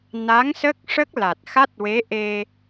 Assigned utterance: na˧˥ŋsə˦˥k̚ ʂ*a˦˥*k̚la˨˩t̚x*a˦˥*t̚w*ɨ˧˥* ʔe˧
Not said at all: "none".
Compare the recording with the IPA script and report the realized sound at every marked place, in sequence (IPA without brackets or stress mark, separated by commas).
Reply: ə˦˥, a˦˥, e˧˥